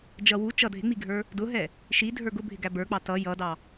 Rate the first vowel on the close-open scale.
mid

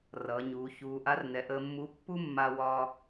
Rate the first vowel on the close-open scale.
mid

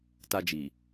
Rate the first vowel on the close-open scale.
open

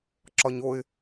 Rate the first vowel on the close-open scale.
open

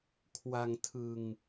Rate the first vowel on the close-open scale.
open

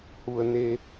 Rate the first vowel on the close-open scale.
close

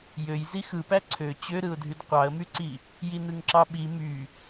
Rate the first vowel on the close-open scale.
mid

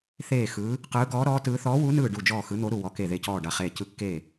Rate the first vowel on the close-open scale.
mid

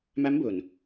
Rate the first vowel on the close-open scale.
open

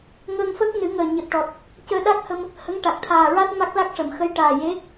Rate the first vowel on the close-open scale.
mid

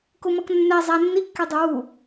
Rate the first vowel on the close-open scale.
close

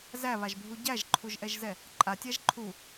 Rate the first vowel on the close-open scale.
open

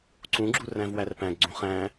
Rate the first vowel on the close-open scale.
close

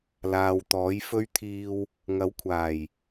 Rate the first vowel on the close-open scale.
open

